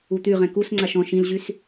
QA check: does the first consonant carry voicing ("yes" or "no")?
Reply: no